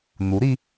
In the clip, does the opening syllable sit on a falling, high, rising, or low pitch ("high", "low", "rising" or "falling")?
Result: rising